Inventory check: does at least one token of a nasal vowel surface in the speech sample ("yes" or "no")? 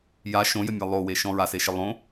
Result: yes